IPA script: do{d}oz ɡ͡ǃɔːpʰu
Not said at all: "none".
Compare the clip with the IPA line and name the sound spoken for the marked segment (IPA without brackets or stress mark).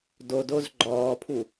d